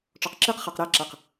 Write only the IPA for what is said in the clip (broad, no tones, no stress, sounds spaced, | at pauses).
ʈ͡ʂ ɔ q ǁ i q χ ɜ q ɾ æ ǁ æ q